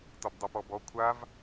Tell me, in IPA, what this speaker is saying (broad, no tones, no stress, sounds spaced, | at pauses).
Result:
t ɒ b dˤ ɛ p ɔ b ɔ kʷʰ a v